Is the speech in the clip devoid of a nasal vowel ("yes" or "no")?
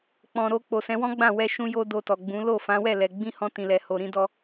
no